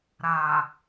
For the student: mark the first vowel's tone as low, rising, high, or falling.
low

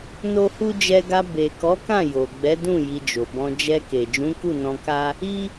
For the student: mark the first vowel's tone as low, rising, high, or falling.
high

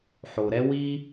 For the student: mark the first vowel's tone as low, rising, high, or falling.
low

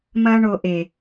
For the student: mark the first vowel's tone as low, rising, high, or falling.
high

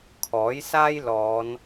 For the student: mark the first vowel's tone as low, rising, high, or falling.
rising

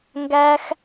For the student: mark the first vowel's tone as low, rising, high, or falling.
high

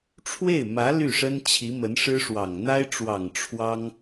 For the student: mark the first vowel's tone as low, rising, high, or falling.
falling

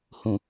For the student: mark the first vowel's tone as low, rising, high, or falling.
low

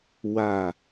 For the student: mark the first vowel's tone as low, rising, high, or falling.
low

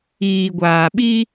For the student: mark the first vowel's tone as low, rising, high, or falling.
low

